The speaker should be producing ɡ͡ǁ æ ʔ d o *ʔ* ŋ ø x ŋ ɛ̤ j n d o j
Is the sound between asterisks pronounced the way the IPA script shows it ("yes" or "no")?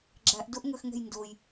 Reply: yes